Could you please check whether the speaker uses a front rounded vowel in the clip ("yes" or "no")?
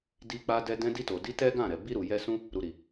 no